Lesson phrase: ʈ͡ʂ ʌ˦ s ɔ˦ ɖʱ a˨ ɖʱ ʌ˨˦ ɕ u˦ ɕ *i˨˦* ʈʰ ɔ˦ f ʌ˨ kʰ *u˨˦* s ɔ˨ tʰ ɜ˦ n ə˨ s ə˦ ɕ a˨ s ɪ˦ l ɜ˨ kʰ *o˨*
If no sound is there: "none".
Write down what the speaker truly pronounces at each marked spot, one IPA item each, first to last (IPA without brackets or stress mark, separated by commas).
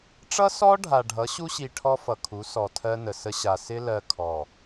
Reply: i˨, u˨˦, ɔ˨